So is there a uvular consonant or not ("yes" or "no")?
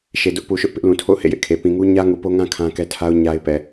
no